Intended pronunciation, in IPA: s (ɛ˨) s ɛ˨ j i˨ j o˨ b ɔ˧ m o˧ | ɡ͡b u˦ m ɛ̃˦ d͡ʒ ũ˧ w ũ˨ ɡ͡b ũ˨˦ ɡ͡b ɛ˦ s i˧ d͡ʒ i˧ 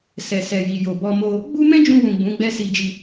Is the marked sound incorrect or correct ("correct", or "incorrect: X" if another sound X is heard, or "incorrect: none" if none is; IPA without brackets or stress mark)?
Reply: correct